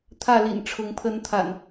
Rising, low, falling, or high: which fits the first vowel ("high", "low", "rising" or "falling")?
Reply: falling